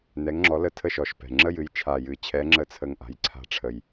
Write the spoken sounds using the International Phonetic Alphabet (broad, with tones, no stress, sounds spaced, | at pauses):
n ɛ˨˦ ŋ ŋ͡ǁ ɔ˨˦ l ə˦˨ tʰ ə˦˨ ʃ ɔ˨˩ ʃ p ɛ̤˨˩ ŋ͡ǁ ə˦˨ j ɨ˨˦ j t͡ʃʰ a˨˩ j ɨ˨˩ t͡ɕʰ ɛ˨˦ ŋ͡ǁ ə˦˥ t͡sʰ ə˦˨ ŋ ʔ a̤˨˦ j ǀʰ a̤˦˨ ʈ͡ʂʰ ə˨˩ j